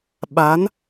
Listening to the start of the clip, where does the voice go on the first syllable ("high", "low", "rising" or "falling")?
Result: rising